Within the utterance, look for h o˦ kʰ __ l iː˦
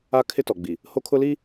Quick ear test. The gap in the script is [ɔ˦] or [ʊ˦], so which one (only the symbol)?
ʊ˦